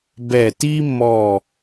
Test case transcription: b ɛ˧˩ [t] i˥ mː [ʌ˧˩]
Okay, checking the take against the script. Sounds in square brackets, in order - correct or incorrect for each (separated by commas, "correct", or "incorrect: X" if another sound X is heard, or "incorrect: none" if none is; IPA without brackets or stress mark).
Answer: correct, incorrect: ɔ˧˩